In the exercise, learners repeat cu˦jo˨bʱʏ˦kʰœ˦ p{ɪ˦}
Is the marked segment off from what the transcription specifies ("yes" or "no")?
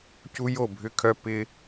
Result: no